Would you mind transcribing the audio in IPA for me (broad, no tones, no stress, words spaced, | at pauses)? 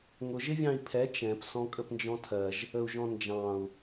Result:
ŋʊ ʒɪvʲɑ̃i̯pʰɛ t͡ʃɛ̃psɔ̃ kʼəpnd͡ʒɔ̃tʰɜʒ | əu̯ʒɔ̃nd͡ʒɑ̃u̯